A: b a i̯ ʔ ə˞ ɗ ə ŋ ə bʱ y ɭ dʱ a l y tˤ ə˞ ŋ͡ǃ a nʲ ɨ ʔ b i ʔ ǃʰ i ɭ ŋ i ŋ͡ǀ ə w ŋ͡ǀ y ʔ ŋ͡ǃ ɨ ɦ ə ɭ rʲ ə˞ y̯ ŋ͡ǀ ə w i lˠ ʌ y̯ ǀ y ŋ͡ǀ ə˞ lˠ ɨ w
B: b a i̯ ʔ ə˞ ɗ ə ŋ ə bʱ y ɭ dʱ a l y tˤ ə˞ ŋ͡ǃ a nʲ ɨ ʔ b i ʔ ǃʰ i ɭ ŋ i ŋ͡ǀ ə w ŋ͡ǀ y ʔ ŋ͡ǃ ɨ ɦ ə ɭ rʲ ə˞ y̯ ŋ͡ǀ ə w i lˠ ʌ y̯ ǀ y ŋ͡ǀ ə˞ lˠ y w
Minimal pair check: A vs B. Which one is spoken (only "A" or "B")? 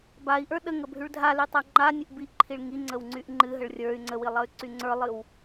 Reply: A